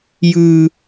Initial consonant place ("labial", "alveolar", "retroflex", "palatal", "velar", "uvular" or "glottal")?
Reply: palatal